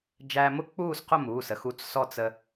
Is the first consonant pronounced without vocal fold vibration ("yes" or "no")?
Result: no